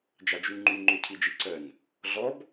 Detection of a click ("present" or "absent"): present